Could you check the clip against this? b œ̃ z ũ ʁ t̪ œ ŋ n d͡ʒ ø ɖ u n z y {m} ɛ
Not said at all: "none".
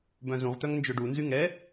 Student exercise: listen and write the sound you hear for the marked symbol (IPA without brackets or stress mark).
ŋ